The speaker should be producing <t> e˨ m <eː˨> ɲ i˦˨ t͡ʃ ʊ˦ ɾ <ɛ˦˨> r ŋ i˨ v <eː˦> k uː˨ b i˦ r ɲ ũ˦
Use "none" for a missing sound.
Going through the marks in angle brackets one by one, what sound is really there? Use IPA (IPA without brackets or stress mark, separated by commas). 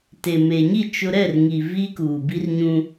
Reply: t, eː˨, ɛ˦˨, iː˦